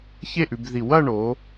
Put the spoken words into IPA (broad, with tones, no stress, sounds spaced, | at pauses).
ç e˥˧ ʔ ʉ˩˧ b ð i˧˩ w ɐ˥˧ ɳ o˩˧